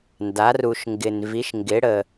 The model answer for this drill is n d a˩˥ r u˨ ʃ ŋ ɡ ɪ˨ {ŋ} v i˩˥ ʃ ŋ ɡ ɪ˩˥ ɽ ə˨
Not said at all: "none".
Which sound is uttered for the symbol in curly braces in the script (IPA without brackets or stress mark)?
n